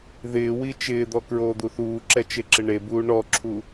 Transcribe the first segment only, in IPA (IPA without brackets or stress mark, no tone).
ð